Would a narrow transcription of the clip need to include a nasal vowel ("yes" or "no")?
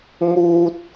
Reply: no